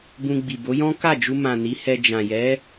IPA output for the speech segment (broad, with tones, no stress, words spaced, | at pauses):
bũ˧ɡ͡bi˨bo˨˦ jɔ̃˦ka˦˨d͡ʒu˧mã˨ ni˨˦hɛ˧ d͡ʒã˨jɛ˨˦